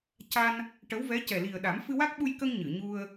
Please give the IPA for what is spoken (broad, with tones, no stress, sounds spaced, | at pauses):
c a˧ n | ʈ ə˧˥ w v ɛ˧˥ c ɛ˨˩ l i˨˩ ə̯ ɗ a˨˩˦ m f ɨ˧ w a˦˥ k̚ ɓ u˧ j k ə˧ ŋ ɲ ɨ˨˩˨ ɲ u˧ ə̯